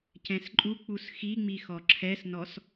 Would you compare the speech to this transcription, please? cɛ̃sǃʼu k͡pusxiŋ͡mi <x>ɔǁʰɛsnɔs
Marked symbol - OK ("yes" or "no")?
yes